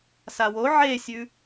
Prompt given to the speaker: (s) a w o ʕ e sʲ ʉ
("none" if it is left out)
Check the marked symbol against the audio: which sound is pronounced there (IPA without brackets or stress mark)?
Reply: s